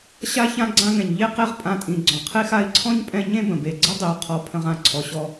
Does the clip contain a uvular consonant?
yes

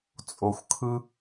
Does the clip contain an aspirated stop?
yes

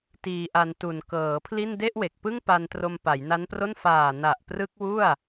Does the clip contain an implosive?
no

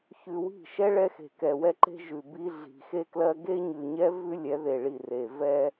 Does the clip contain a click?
yes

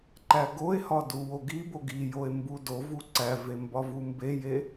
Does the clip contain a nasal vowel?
no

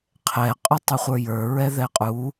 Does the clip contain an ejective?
yes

